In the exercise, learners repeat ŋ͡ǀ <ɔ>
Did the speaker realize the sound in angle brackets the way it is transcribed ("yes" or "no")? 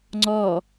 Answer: yes